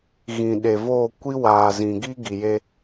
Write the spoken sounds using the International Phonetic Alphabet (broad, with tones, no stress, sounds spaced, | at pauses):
ɣ ĩ˨ ɗ e˨ v oː˦˨ kʷ i˦ w aː˨ z ĩ˨ ɡ i˦ ɡ i˨ j e˦